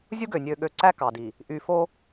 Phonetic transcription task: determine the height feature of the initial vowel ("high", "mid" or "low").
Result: high